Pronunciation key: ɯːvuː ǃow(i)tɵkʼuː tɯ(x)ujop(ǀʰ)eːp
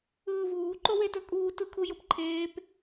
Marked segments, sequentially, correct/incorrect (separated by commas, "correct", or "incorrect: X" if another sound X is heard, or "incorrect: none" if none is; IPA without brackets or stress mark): incorrect: e, incorrect: kʰ, incorrect: ǃʰ